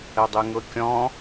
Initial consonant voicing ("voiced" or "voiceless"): voiced